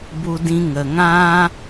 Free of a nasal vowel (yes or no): no